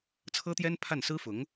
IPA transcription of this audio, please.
t͡sʰ ɤ˥ t̪ j ɛ˥ n pʰ a˥˩ n s ɹ̩˥ f ʊ˧˥ ŋ

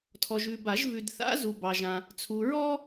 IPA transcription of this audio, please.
tʰ ɔ˨ ʒ ʉ˨ b a˨˩˦ ʒ v ʉ˨ d θ a̰˧˥ z u˨ b ɑ˨ ʒ ã˨ | t͡sʰ u˨ ɹ ɔ˥

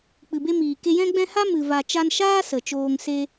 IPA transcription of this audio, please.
k͡p ɨ˨ b e˦ m iː˨ k e˧ j ɛ̃˦ ɡ͡b ɛ̃˦ h a˦ m ɨ˨ v a˨ t͡ʃ a˧ n ʃ aː˦ s ə˨ t͡ʃ oː˧ ŋ s e˦

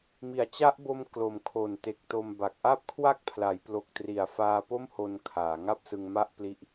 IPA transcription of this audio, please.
m i˩˦ a̯ t͡ɕ a˦˥ ʔ b o˧ m k l o˨˩ m kʰ o˨˩ n t e˨˩ k̚ t o˧ m b a˨˩ k̚ ʔ a˥˩ p̚ kʰ w a˥˩ k̚ pʰ l a˩˦ j p l o˨˩ k̚ t r i˨˩ a̯ f aː˧ p o˥˩ m h o˧ n kʰ aː˩˦ ŋ a˥˩ p̚ s ɯ˧ ŋ m a˥˩ ʔ p l i˦˥ ʔ

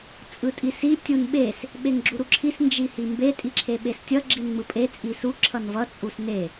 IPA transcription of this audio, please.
t͡sʼ ɯ tʼ i s i tʲ u n ɓ e s | ɓ e ŋ ɡ͡ǁ u ɾ u ǁʰ i s n d͡ʒ i h i m b e tʼ i ǁʰ e ɓ e s tʲ ʌ ɡ͡ǁ i n ŋ͡m ɯ pʼ e t͡sʼ i s u ǁʰ ʌ n v ʌ t͡sʼ u s n e

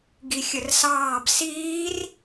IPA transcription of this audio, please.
ɡ i xʲ ə r s ɑː b s iː r

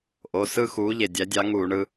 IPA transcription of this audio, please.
ʔ o˩˧˩ s ɯ˥˧ x uː˨˦ ʎ e˩ dʲ æ˨˦ dʲ ɑ˨˦ ŋ uː˧˩˧ ɳ ɯ˨˦

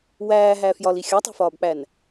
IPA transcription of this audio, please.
w æː ɦ æ f j ɒ l i xʲ ɒ tˤ e̤ f ɒː b k͡p æ n

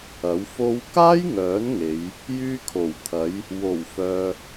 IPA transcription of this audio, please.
ɐ˨˥ w f o˧ w k aː˥ j ŋ œː˨˥ n ŋ e˨˧ j | j yː˧ kʰ o˨˩ w t̪ʰ ɐ˨˧ j | w o˨˩ w f œː˨

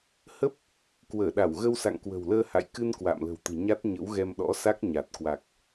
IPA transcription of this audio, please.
h ə˦˥ p̚ | k w əː˧˩ ɗ a˧˩ w ɣ ə˧ w s a̰˧˨ ŋ k w ə̤˨˩ w l əː˧ h a̰˧˨ j k ɨ˧ n k w a̰ː˧˨ m l ə̤˨˩ w t̪ ɨ̤˨˩ ɲ a˦˥ t̚ ɲ ə̰˧˥ w ɣ ɛ˧ m ɗ ɔ̰˧˥ s a˦˥ k̚ ɲ a˨˩ t̚ k w a˨˩ k̚

